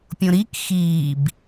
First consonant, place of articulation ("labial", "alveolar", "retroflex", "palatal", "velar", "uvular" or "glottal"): labial